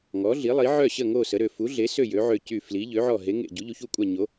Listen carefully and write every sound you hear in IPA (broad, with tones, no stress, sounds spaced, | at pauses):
ŋ ɔ˨˥ ɮ i˨˥ lˠ i˨˥ ʕ œ˦˨ ɕ ə˦˨ ŋ o˦˨ s ə˨˥ ɾ ø˦˨ f u˨˥ ɮ e˨˥ s ø˦˨ j ø˨˥ ʕ ø˦˨ c y˦˨ f l i˨˥ ʎ ø˨˥ ʕ ɔ˦˨ ɦ e˨˥ ŋ ḛ˦˨ ɟ u˨˥ ʎ u˨˥ ç u˦˨ kʷʼ a˦˨ ɲ o˨˥